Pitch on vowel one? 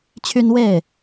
high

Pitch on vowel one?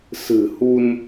low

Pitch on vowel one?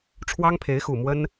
high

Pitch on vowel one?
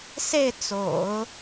falling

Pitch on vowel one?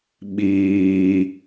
low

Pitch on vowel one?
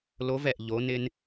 rising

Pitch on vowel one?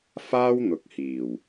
high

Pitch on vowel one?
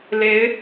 rising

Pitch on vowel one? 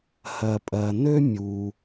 low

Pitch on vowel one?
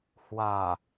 low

